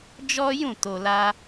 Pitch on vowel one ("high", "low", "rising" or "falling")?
high